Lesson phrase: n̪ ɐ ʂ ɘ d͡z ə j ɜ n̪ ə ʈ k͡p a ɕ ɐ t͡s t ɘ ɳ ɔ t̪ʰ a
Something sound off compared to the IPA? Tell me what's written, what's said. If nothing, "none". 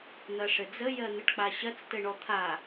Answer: none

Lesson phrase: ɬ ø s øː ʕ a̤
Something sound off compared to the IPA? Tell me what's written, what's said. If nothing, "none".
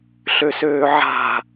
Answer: none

